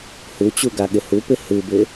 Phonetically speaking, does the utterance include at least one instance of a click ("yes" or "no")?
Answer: no